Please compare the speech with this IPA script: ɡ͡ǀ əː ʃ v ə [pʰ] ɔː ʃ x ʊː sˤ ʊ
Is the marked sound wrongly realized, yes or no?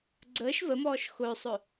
yes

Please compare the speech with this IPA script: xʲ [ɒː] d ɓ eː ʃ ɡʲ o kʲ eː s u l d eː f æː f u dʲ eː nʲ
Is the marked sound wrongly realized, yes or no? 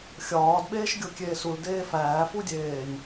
no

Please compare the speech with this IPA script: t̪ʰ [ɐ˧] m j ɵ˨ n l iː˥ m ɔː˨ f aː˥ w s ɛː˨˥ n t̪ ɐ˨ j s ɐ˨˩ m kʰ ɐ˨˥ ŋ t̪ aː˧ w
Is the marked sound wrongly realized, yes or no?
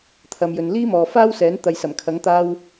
yes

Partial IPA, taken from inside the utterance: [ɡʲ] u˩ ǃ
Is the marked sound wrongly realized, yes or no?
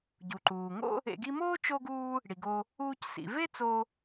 yes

